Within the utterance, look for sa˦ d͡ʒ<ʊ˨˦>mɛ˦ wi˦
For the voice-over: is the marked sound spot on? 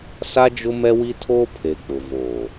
no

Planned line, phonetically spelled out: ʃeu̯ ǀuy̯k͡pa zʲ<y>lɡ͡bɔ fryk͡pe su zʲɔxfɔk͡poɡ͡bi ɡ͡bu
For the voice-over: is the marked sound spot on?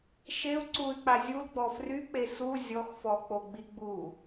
no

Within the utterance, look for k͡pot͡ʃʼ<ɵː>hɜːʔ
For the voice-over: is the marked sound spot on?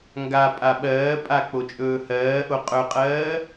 yes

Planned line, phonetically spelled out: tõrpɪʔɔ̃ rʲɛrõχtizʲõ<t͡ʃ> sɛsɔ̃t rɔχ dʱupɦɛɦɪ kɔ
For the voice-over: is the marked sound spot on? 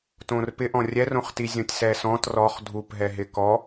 no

